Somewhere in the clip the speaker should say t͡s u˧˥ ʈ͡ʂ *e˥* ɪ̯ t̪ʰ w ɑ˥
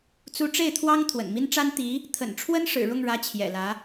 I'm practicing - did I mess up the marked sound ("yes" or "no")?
yes